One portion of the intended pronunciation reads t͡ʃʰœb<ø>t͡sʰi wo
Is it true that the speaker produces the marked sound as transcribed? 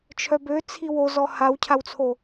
yes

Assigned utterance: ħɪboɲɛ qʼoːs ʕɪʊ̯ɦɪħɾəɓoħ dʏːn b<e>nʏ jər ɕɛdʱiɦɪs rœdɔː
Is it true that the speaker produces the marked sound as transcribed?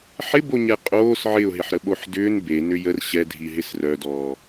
yes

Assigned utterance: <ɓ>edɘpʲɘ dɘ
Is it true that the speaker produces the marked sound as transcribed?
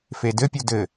no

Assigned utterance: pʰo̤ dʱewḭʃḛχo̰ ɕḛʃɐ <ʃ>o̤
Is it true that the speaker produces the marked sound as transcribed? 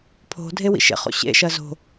no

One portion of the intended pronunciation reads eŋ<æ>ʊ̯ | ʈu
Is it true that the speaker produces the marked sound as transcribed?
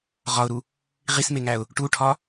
yes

